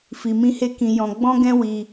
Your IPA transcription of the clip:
f i˨ m ĩ˧ h e˧ k ĩ˨ j ɔ̃˨ ɡ͡b ɔ̃˧ ɡ ɛ̃˧ w i˧

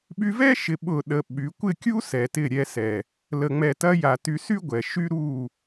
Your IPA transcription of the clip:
ɓ y˧ v ɛ˦ ʃ ɪ˨ ɓ ʊ˦˨ ɗ ə˧ ɓ y˨˦ kʷ ɪ˦˨ kʲ u˦ s ɛ˨ t ɪ˦˨ ɾʲ ɛ˧ s ɛ˨ | l ə˨ ŋ͡m ɛ˨ t ɐ˧ j a˨ t y˧ s y˦ ɡʷ ɛ˨ ʃ y˦ ɾ u˦˨

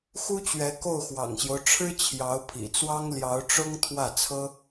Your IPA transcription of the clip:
x u˥ t͡ɕ ɥ ɛ˧˥ k o˥˩ ʊ̯ x w ɑ̰˨˩ ŋ ɕ j o˦ ʊ̯ ʈ͡ʂʰ ɻ̩˥ t͡ɕʰ j ɑ˧˥ ʊ̯ pʰ ḭ˨˩ t͡s w ɑ˥ ŋ l j ɑ˧˥ ʊ̯ ʈ͡ʂ ʊ˥ ŋ t̪ʰ w ä˥˩ t͡sʰ ɤ˥

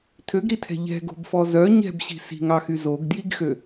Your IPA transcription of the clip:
tʰ ø ɡ ɾ i tʰ ɛ̤ ʎ ɛ̤ ɡ o̤ b f ɔ z œ ɲ ɛ̤ b ɕ i̤ s i̤ ŋ ɑ x y z o ɡ d j i ɡ x ø

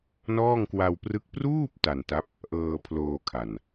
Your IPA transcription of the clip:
n ɔː˥˩ ŋ k w a˧ w p r ɯ˦˥ k̚ p r uː˥˩ p̚ t a˨˩ n t a˦˥ p̚ | ʔ ɤː˧ pʰ l oː˧ kʰ a˨˩ n

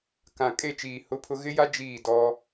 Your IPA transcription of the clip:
k ã˨ kʼ e˦˨ t͡ʃ iː˨ h ʊ˦ pʰ ʊ˦ ɣ ɪ˦ j a˦ d͡ʒ iː˦˨ d ɔ˦

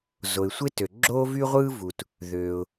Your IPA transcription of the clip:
z o˩ ɪ̯ sʷ e˥ t ø˩ ɡ͡ǁ oː˥ v y˥ ʁʷ ɯː˥ v u˩ t | ð øː˩ ʊ̯

